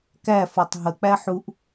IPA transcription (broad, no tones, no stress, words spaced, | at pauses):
kæ fɔtˤɦə k͡pæħuʔ